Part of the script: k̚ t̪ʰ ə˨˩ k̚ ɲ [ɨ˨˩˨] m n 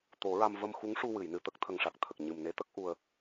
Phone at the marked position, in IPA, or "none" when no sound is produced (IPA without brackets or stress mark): ɨ˨˩